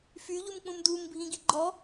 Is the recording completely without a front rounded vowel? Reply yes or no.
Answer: no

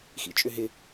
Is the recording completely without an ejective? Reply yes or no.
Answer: no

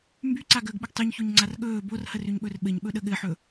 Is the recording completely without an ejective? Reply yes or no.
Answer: yes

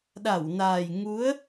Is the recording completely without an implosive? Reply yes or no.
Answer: no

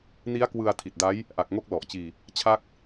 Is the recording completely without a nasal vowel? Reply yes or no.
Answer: yes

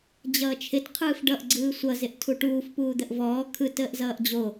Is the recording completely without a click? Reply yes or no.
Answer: no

